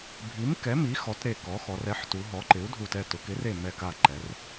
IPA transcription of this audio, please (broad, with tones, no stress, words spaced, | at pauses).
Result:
bʱi˩˥mkɛ˩˥mi˩˥ xɔ˩˥tɾe˧˩kɔ˩˥xɔ˩˧ rɛ˩˥ħtu˩˧ ɦɔ˩˥ǃɪ˩˥u̯dʱu˧˩tɛ˧˩ tʊ˩˧kɪ˩˥re˧˩ mɛ˧˩ka˧˩ǃɛ˩˧r